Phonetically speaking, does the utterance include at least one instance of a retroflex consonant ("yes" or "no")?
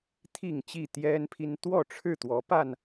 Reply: yes